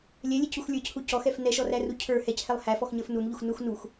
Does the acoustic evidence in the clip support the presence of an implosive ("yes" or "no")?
no